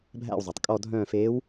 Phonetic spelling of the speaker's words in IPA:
bʱ æ̰˦˨ w zˤ ø˩ tˤ kʼ ɔ˦˨ dʱ œ̃ː˦˨ f eː˧˥ w

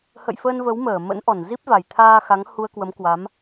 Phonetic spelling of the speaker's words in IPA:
h ə̰˧˨ j f əː˧ n v ə˨˦ w m əː˧˩ m ə̰˧˥ n ʔ ɔ˧˩ n z i˦˥ p̚ v a˨˩ j t̪ʰ aː˧ x a˨˦ ŋ h u˧ ə̯ k w ə˨˦ m k w a˨˦ m

